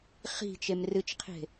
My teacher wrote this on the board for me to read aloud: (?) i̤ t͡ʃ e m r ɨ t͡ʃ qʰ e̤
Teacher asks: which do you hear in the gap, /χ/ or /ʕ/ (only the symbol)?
χ